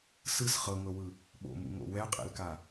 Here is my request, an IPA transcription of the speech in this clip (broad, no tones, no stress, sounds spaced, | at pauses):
s ɯ s χ ɤ ŋ ɤ w ɯ | ɓ o̰ m ṵ ŋ o̰ w ɛ qʼ ḛ l k a